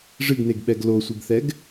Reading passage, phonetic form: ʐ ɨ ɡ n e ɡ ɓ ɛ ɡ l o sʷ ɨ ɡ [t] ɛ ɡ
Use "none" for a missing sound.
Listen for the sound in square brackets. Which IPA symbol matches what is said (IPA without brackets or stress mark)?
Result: θ